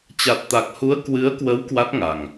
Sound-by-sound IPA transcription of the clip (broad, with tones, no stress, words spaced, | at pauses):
t͡ɕa˨˩t̚t̪a˨˩k̚hu˨˦ə̯ kwɨ˨˦ə̯kwə˨˦w kwa˦˥t̚ŋa˨˩ŋ